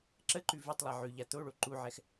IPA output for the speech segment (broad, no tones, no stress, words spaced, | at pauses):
ǁəǃʉ vʉtˤlˠa ʕʉʎa t̪oɭo ǃuʕɛx